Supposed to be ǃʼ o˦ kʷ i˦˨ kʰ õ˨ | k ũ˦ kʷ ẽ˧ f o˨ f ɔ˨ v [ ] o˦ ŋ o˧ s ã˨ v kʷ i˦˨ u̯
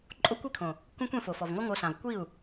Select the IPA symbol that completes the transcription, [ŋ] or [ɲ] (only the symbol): ŋ